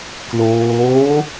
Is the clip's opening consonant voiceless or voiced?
voiceless